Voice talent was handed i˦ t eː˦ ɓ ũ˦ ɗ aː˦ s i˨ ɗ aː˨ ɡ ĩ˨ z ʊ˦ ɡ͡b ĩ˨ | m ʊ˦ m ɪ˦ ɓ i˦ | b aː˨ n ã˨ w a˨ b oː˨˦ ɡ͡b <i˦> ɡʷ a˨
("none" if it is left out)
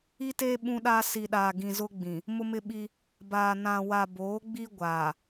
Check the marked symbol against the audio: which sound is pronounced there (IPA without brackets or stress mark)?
i˦